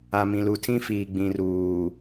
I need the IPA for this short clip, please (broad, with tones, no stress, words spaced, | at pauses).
a˨mĩ˨lu˨tʰĩ˦ fiː˨ɡ͡bĩ˨ruː˨